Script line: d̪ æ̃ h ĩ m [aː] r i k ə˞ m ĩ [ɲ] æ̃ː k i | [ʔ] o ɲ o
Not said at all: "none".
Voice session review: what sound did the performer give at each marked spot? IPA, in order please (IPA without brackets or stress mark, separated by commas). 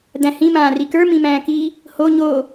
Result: ãː, m, h